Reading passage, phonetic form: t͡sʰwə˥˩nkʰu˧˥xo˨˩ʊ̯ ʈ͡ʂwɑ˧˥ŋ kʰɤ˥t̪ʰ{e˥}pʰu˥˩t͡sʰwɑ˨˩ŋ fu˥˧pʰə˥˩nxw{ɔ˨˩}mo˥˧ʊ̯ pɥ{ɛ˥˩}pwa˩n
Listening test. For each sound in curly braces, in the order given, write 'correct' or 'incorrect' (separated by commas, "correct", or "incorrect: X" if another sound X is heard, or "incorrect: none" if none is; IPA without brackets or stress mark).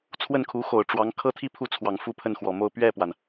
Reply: incorrect: i˥, correct, correct